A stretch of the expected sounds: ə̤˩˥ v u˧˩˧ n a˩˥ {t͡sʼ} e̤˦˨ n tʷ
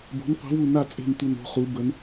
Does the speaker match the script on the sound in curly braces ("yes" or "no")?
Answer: yes